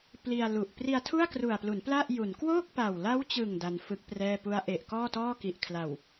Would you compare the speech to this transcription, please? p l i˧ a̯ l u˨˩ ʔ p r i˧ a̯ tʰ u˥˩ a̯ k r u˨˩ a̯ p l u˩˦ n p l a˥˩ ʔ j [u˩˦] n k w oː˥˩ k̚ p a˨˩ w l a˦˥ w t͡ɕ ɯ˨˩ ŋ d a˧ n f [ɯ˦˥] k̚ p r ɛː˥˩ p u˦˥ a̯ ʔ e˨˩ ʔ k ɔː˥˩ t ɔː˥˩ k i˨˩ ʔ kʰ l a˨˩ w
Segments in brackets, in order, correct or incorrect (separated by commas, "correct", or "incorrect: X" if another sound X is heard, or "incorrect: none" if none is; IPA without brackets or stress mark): correct, correct